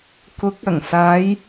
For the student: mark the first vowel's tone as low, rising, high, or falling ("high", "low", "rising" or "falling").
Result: rising